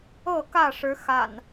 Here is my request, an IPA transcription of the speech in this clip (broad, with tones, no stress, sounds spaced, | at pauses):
ɤ˥˨ k ä˥˨ ʂ ɻ̩˨˦ x a̰˨˩ n